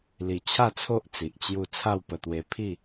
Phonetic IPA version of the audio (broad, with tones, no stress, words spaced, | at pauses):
li˨˩t͡ɕʰa˥˧t͡sʰo˦ʔ t͡si˨ʔt͡ɕju˥˧ t͡sʰa˥˧wpə˧t̪we˧ pʰi˥˧